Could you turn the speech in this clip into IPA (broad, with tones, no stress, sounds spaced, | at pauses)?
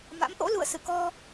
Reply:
m a̰˧˥ m ʔ o̰˧˥ l ṵ˧˨ ə̯ s ɨ̰˧˨ k ɔ˧